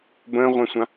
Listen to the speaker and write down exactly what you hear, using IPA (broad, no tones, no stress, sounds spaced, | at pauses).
b ə̃ː ʁʷ ɛ̃ sʷ ã